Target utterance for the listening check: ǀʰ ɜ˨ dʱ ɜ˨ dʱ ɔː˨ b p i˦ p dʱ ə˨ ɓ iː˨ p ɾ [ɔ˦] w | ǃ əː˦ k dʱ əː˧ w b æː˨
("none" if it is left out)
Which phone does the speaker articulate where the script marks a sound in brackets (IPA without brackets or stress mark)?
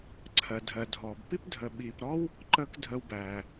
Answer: ɔ˦